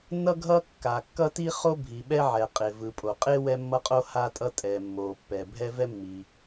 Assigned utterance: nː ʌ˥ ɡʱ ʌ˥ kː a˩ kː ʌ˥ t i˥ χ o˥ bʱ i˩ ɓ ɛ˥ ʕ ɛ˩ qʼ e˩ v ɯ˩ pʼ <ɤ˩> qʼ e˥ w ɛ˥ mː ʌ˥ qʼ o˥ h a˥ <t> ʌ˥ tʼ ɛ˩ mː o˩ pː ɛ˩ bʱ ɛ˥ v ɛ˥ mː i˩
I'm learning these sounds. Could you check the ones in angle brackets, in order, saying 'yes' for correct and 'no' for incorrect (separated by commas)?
no, no